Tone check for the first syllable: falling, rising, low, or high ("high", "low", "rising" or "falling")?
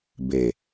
low